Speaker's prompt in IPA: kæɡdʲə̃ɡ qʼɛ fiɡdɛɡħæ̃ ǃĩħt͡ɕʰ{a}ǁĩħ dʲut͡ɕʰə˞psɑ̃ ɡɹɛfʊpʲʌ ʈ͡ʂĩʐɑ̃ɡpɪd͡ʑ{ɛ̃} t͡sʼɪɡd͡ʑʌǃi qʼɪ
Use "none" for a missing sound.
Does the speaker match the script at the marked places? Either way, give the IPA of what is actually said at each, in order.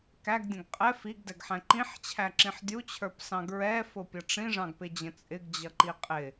æ, ə̃

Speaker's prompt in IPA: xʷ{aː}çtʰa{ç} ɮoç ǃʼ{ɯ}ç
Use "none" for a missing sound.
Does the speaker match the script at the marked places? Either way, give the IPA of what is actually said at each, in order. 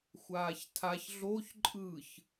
aː, ç, ɯ

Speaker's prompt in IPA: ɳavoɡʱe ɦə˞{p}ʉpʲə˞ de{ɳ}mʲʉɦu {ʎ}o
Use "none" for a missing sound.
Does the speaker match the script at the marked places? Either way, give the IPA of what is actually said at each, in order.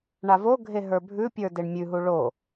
bʱ, ɳ, ɭ

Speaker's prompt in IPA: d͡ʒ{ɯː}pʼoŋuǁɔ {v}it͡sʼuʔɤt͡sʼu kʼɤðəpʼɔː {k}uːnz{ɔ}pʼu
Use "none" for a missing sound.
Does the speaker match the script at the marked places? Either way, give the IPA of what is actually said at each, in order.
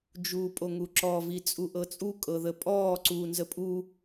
uː, v, ǀ, ə

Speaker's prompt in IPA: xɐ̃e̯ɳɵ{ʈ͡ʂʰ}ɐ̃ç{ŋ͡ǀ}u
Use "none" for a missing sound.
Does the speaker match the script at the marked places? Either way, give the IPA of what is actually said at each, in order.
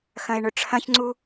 ʈ͡ʂʰ, ŋ͡ǀ

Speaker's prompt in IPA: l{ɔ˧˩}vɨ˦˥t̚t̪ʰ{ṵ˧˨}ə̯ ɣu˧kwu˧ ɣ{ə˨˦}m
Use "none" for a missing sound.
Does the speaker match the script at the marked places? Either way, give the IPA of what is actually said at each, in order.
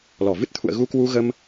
ɔ˧˩, ṵ˧˨, ə˧

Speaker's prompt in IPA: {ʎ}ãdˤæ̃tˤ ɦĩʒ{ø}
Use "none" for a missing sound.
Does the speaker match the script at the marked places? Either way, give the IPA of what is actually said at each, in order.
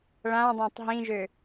ɭ, ø

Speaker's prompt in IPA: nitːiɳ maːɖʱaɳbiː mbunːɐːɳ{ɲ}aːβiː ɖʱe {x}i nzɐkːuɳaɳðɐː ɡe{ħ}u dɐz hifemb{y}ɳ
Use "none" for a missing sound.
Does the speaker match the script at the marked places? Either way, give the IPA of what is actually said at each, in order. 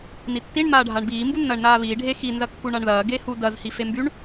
n, x, h, y

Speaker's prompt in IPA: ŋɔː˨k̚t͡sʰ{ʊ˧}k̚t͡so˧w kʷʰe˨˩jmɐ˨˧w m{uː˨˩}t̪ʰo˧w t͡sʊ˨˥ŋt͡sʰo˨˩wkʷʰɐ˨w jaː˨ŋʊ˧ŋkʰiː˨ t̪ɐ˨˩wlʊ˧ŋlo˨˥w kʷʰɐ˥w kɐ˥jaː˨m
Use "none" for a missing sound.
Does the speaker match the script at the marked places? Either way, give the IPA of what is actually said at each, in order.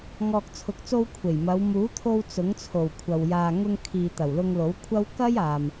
ʊ˨, uː˨˥

